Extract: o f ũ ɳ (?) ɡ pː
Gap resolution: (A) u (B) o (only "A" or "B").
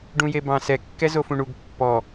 A